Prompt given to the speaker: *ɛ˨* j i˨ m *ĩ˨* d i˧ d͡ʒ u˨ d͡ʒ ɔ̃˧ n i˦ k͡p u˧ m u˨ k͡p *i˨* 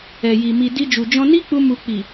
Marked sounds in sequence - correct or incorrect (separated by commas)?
correct, incorrect, correct